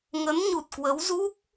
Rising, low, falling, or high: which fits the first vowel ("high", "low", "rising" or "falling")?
rising